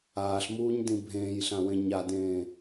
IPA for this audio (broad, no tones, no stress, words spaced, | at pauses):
aːɬmuːɲdĩ bʱẽːjɬãwẽ ɲadẽː